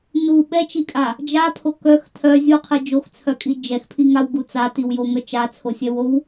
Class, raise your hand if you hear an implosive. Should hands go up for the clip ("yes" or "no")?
yes